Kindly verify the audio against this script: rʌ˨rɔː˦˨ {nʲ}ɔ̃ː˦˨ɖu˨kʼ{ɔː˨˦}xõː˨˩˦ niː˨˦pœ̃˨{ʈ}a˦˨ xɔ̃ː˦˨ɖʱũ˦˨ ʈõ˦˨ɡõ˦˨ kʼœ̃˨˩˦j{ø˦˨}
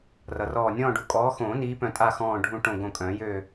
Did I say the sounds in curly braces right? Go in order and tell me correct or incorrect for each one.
correct, correct, incorrect: tʼ, correct

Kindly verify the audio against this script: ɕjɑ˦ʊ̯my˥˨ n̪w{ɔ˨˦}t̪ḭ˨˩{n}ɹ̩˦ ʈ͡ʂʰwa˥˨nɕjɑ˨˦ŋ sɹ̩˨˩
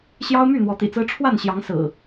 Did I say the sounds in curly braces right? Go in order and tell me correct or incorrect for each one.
correct, incorrect: t͡s

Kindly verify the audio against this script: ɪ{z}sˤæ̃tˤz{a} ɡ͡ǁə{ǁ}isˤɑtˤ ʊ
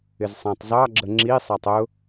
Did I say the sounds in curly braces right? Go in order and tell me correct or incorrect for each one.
correct, incorrect: ɑ, incorrect: ŋ͡ǁ

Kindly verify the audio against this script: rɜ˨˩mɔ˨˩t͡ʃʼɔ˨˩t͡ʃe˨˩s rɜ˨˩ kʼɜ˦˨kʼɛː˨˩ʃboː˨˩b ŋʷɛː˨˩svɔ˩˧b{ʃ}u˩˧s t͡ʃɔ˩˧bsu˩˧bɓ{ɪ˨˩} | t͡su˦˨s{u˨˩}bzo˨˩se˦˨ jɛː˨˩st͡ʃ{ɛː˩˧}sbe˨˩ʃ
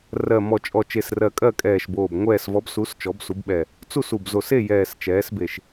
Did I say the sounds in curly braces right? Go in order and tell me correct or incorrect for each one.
incorrect: s, incorrect: ɛ˨˩, correct, correct

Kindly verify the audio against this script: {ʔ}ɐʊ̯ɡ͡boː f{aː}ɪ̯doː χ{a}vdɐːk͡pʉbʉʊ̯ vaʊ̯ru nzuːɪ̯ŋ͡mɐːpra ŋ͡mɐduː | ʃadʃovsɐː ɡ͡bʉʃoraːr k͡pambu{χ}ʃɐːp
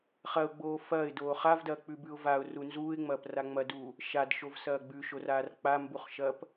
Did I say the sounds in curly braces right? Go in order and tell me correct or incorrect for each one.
incorrect: χ, incorrect: ɐː, correct, correct

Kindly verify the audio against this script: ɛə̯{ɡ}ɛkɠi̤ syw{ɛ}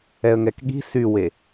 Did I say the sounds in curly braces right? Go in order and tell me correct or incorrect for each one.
incorrect: ŋ, incorrect: e

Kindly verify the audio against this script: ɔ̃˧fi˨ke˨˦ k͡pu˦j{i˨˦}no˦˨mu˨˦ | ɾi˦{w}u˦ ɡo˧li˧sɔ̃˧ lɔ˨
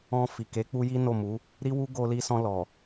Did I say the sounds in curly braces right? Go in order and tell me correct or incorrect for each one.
incorrect: i˦, correct

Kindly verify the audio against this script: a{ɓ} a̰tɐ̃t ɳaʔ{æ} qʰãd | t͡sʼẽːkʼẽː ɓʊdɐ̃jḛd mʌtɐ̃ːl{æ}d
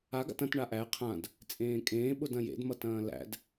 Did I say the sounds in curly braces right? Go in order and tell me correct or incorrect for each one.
incorrect: ɡ, correct, incorrect: æ̰

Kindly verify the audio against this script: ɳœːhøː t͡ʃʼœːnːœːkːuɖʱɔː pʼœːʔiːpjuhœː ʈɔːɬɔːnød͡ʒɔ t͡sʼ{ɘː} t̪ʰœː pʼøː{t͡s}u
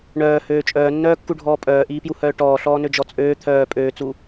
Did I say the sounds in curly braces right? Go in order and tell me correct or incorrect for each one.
incorrect: øː, correct

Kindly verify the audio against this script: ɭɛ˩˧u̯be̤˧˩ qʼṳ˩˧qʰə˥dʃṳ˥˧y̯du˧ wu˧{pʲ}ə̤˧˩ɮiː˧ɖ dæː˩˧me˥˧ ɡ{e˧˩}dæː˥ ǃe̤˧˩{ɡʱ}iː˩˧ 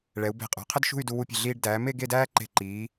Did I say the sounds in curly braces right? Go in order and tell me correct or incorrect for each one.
correct, incorrect: e˥˧, incorrect: ǃ

